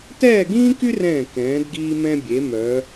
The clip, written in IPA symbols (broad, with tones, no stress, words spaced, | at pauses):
tɛː˥˧ɡĩː˥ky˥rɛ̃ː˧˩ kɛ̃ː˩˧dɡiː˧mɛ̃˧bʲe˩˧ mœ˩˧